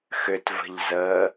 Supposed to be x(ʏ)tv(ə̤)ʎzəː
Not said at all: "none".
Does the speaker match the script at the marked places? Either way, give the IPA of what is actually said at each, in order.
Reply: ʏ, ə̤

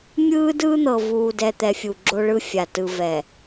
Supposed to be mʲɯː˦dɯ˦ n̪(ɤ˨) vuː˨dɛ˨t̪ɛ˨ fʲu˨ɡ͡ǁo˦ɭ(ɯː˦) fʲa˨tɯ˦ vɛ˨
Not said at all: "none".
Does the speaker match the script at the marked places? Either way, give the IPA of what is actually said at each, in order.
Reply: ɤ˨, ɯ˦

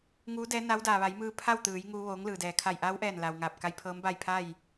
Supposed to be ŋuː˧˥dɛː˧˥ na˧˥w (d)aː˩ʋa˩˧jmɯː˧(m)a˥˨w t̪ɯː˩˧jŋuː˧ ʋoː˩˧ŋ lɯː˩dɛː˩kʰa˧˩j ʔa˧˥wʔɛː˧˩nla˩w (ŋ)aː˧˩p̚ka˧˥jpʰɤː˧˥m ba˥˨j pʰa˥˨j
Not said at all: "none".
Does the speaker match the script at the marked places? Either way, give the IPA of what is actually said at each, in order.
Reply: d, pʰ, ŋ

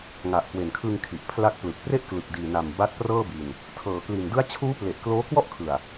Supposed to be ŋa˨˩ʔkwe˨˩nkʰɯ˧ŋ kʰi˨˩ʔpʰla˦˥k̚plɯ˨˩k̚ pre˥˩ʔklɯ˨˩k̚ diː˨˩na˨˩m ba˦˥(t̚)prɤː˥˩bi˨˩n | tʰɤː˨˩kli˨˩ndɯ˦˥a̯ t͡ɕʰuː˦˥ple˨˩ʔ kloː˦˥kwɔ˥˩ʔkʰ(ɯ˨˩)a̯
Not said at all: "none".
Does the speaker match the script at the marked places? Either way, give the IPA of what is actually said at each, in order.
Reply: t̚, ɯ˨˩

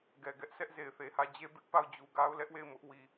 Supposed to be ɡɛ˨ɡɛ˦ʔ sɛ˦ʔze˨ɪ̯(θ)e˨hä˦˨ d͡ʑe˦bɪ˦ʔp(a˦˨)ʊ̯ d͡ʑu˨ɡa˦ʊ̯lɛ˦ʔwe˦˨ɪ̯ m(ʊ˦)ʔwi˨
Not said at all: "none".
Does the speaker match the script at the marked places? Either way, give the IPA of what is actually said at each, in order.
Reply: θ, a˦˨, ʊ˦

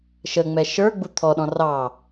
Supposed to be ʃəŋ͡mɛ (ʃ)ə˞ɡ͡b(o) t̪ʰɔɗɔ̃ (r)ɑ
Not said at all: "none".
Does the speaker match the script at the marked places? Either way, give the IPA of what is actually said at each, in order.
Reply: ʃ, u, r

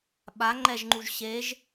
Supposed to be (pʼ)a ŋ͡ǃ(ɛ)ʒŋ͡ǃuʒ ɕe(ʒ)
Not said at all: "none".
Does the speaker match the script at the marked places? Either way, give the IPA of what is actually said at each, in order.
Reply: ɓ, ɛ, ʒ

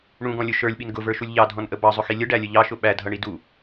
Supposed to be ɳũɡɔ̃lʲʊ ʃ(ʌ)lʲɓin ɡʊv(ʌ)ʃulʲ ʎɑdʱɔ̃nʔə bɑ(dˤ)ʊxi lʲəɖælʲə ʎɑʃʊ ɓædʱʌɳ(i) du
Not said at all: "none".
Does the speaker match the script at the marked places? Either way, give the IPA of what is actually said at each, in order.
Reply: ə˞, ə˞, zˤ, i

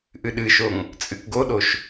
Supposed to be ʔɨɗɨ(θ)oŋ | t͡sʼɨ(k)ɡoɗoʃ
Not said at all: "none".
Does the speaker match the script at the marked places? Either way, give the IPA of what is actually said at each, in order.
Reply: ʃ, k

